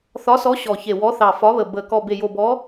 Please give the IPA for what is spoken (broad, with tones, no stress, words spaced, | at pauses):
θɒ˨˦sɔ˨˦ ɕɔ˨˩çe˨˩ wɔ˨˦θɑ˨˩fɒ˨˦βə˨˩ bə˨˩ kɔ˨˩be˨˩jo˨˩bɔ˨˦